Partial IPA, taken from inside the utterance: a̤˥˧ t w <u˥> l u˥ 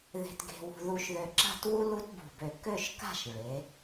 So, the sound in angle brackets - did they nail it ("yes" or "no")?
yes